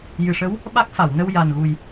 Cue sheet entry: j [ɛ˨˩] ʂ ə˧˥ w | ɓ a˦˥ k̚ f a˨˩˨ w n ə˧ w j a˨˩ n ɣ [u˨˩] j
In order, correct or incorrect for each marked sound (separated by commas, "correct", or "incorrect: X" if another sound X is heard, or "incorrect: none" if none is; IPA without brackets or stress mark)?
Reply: incorrect: ɨ˨˩, correct